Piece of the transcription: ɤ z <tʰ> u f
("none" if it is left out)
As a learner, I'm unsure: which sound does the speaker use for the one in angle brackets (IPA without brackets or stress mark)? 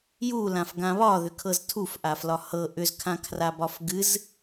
tʰ